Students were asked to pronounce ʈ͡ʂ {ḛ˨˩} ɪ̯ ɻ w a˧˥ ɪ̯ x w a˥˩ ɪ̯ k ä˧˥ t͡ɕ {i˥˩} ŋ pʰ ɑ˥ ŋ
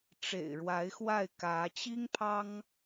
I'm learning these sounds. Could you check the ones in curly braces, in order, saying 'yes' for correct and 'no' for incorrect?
yes, no

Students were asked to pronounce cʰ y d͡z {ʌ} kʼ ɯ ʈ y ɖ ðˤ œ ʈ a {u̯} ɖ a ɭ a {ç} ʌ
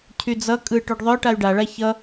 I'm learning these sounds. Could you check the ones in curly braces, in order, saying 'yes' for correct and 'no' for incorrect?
yes, no, yes

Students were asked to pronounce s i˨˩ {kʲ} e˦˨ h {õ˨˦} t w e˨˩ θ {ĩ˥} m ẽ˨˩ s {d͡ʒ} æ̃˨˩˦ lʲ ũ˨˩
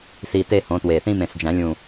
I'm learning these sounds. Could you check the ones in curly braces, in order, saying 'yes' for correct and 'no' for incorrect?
no, yes, yes, yes

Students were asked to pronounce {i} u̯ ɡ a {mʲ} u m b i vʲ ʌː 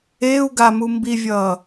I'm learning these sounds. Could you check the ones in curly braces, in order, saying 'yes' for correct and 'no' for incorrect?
no, no

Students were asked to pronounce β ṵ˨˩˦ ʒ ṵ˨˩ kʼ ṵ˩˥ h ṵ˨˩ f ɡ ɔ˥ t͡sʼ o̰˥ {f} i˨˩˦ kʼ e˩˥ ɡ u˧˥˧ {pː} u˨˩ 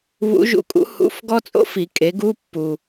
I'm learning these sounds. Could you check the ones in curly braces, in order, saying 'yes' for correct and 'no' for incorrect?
yes, yes

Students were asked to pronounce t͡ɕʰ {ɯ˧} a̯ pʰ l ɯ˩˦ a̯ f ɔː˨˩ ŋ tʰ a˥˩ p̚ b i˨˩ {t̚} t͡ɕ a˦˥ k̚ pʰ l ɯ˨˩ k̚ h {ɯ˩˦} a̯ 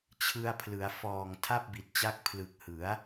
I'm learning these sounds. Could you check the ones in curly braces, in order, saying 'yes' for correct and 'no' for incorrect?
yes, yes, yes

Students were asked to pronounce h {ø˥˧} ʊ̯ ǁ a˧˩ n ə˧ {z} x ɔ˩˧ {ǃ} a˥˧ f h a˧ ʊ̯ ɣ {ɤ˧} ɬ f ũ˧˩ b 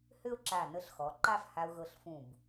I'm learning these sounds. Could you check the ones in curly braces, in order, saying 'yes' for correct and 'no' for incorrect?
yes, no, yes, yes

